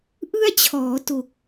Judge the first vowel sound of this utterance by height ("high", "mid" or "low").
high